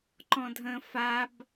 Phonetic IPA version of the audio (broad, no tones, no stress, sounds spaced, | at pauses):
ǃ ɔ̃ dʱ ə̃ f a b